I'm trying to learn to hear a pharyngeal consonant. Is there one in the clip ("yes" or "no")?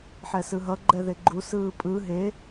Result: yes